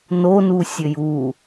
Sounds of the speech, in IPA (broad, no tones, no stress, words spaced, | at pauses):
nonusʲɘj u